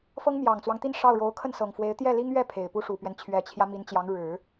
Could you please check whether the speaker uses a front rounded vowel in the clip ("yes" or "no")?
no